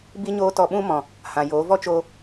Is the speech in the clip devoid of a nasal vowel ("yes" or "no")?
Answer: no